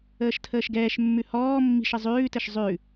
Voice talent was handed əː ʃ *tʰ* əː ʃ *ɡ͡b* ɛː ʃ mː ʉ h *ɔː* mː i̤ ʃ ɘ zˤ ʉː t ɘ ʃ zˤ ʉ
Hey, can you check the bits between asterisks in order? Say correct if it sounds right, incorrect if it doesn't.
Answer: correct, incorrect: ɡ, correct

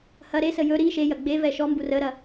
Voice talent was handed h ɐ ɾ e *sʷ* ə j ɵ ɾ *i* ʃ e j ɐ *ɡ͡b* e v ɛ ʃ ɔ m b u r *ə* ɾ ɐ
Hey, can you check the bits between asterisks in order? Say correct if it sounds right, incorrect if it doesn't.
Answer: incorrect: s, correct, correct, correct

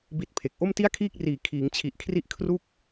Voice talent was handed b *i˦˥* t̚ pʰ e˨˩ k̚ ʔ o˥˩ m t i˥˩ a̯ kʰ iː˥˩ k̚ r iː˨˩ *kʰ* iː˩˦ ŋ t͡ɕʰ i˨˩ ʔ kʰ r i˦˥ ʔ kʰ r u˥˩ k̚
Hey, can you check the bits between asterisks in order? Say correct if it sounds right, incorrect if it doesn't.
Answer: correct, correct

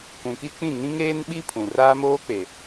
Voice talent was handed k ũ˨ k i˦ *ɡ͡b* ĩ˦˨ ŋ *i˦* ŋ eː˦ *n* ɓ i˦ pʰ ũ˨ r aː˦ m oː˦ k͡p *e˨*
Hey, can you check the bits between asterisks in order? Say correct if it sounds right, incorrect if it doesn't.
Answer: incorrect: k͡p, incorrect: ĩ˦, correct, correct

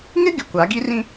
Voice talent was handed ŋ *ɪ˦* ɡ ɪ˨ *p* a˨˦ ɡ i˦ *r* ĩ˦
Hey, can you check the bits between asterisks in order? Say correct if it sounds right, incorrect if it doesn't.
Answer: correct, incorrect: kʷ, correct

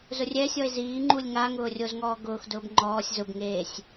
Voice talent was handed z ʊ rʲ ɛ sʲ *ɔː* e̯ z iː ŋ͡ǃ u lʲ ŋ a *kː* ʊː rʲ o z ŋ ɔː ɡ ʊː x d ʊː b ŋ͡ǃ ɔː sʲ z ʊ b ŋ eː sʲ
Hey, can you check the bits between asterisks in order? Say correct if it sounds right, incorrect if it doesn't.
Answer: incorrect: ɔ, incorrect: ŋ

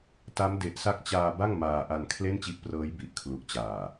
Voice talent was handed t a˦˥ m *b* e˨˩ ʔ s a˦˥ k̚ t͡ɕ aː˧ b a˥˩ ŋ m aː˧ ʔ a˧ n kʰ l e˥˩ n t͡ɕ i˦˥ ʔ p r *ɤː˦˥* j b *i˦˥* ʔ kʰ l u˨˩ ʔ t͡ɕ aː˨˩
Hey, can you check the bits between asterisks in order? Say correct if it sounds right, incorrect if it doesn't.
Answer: incorrect: d, correct, incorrect: i˨˩

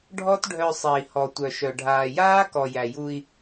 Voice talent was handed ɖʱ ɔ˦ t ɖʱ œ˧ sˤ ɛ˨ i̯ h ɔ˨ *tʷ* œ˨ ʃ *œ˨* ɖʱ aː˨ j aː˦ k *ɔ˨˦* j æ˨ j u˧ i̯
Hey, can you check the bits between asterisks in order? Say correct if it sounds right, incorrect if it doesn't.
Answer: correct, correct, incorrect: ɔ˨

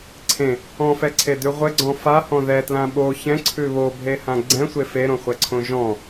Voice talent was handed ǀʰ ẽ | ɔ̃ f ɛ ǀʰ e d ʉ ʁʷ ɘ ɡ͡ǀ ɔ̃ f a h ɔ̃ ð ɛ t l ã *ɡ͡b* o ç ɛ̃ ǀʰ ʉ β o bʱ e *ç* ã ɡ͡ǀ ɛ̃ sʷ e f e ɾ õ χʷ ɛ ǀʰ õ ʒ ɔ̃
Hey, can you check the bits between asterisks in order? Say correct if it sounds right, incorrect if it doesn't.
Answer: incorrect: ɓ, incorrect: h

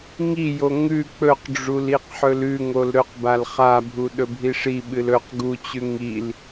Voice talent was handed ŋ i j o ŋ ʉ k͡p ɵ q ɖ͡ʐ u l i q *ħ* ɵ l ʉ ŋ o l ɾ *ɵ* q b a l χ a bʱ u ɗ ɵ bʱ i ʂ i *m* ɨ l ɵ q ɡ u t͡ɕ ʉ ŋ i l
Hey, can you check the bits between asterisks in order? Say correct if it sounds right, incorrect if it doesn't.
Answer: correct, correct, incorrect: ɓ

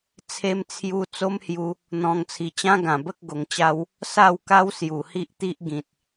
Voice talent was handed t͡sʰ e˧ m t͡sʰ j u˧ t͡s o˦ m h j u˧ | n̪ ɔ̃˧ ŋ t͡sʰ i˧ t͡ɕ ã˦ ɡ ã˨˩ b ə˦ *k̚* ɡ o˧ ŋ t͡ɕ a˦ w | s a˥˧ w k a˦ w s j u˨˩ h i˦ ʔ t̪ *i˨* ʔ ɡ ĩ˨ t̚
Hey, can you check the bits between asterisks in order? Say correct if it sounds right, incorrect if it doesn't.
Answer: correct, incorrect: i˦

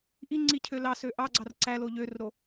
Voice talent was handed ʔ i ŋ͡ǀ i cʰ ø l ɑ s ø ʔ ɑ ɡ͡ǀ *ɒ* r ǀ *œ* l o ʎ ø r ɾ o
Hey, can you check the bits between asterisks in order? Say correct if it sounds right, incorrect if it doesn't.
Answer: incorrect: ɑ, incorrect: æ

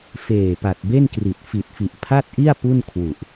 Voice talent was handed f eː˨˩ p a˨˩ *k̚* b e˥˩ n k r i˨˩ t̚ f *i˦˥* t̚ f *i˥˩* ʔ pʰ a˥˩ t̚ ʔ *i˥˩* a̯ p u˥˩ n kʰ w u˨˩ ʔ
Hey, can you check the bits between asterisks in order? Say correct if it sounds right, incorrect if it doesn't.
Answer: incorrect: t̚, incorrect: i˨˩, incorrect: i˨˩, correct

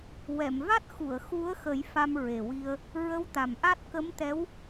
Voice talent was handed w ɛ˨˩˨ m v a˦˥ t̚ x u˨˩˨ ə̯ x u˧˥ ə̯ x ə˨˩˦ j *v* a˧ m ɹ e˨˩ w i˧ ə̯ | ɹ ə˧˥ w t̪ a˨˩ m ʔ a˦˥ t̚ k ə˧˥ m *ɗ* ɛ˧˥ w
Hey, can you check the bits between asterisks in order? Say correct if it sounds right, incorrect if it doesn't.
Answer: incorrect: f, incorrect: t̪

